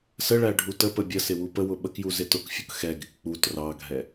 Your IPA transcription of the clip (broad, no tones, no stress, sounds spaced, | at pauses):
s ə ɭ æ ɖʱ u t ə p ə bʲ ə s ɪ w u p ə w ʊ ɓ ə k j u z ɪ t ʊ k fʲ ʊ k x ɛ ɡ ɪ k k͡p u t r ɑ ɡʱ ɛ